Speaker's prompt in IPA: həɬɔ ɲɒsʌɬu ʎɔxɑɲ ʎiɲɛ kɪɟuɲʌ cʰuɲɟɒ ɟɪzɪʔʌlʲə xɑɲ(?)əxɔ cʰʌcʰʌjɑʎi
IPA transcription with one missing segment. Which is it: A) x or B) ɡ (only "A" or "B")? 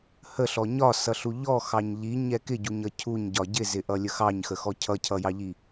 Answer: A